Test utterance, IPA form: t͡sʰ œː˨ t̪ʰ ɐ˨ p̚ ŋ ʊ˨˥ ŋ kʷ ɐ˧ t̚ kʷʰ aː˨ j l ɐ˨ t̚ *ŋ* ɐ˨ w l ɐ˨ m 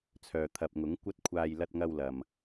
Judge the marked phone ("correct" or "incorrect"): correct